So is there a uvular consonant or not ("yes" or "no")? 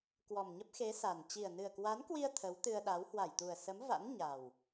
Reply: no